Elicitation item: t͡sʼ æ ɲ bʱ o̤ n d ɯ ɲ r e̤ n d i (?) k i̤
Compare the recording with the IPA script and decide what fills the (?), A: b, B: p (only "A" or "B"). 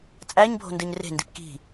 B